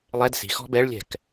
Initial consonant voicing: voiced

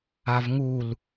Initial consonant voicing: voiced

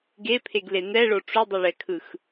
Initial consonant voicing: voiced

